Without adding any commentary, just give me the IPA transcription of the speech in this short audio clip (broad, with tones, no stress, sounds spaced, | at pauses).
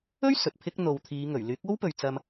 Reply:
ɵ˥ ɥ s ɵ˨ t̚ pʰ ɪ˥ k̚ n̪ o˨ w t̪ʰ iː˨˧ ŋ ɵ˨˩ ɥ l yː˨˥ k̚ o˥ w p ɵ˨ ɥ t͡s ɐ˧ m